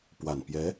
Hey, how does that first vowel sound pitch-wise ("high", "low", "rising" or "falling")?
low